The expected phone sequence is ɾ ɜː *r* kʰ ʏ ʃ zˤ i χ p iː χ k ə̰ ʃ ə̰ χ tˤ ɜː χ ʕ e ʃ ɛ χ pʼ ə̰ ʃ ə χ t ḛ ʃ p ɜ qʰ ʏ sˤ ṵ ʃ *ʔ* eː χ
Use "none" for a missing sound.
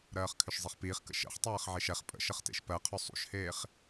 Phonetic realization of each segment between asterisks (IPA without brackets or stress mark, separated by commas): χ, h